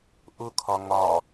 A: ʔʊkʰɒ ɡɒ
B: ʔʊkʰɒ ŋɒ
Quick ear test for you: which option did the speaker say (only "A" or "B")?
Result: B